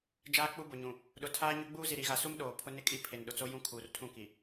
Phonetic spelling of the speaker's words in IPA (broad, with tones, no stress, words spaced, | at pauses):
d͡ʒaː˦k͡pu˦bʊ˨ɲũ˨ | ɗʊ˨tʰaː˦ɲʊ˦ ɡ͡buː˦ zi˨ɾi˨ɣa˨ su˦m ɗoː˨ pʰʊ˦ nɪ˦kʼi˦ pʰe˨nɗʊ˨t͡so˦ jũ˦kʰuː˨rtʰũ˦˨ki˨